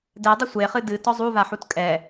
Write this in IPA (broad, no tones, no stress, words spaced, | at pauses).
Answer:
dɛdˤe sʷeχɨ dɨtɔ zˤuvaħut kʼɛ